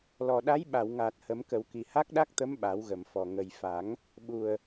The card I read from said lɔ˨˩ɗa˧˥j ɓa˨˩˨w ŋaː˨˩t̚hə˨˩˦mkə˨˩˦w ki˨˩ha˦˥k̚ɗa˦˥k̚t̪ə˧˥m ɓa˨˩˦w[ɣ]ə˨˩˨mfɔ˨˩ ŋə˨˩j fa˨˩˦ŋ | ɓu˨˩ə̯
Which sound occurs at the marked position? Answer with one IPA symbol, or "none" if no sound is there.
ɣ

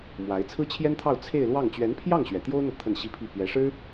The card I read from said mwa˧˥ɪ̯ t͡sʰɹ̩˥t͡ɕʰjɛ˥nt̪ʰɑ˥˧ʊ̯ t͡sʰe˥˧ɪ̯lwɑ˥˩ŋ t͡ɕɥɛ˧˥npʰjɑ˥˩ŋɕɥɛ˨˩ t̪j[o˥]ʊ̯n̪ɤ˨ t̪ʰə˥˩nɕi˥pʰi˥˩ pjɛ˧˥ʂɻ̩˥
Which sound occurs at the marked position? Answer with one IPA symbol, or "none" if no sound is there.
o˥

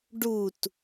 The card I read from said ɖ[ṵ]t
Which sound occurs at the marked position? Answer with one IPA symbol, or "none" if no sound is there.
u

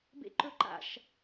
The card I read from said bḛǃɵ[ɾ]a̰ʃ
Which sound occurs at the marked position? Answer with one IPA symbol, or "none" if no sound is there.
ǃ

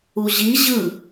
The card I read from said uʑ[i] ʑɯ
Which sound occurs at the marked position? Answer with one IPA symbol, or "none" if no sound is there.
i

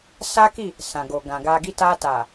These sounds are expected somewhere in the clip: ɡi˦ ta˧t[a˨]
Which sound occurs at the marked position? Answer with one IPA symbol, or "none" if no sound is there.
a˨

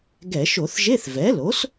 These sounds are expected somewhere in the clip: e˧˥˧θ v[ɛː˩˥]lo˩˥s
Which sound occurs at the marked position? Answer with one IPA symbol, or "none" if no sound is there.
ɛ˩˥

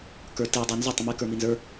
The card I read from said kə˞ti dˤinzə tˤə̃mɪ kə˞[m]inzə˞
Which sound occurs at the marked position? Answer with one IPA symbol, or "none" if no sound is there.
m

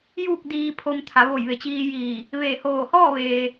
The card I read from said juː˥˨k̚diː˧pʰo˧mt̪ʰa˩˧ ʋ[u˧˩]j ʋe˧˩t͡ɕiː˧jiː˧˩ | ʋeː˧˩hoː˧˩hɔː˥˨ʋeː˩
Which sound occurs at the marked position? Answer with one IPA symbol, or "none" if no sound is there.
o˧˩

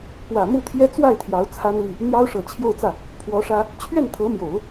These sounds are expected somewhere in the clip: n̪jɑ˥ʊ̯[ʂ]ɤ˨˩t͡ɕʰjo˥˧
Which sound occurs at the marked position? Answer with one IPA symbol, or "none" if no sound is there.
ʂ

